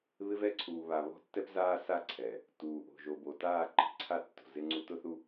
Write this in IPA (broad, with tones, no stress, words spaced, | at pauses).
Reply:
βɪ˦vɛ˦ǀʰuː˨βa˨ βɔ̤˦tːɛ˦pzaː˦ sa˦ǀʰɛ˨ | tuː˨ʔo̤˨ ʒo˨bo˨ taː˦˨ǃɛ̤˨ǀʰa˦tːo̤˨ zɪ˦ŋ͡ǀu˦ tʊ˦θu˦